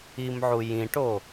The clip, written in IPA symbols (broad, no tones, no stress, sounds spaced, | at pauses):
i m ʕ u j ĩ ʈ o